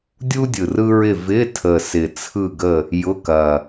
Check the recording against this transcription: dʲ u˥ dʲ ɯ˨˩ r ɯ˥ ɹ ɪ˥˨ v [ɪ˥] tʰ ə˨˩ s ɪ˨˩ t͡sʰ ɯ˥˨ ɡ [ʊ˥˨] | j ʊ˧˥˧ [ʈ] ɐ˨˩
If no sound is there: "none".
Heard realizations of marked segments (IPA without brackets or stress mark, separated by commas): ɪ˧˥˧, ə˥˨, k